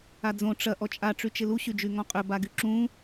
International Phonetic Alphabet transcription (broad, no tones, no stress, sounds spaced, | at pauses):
a d͡z õ ʈ͡ʂ ɐ ʔ ɔ t͡ʃʼ a ʈ͡ʂ y t͡ʃ ɪ l u ɕ y d͡ʒ y ŋ ɔ̃ qʼ ʏ b a ɡ y ǁ ũ